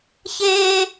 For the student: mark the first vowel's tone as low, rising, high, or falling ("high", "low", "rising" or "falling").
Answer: high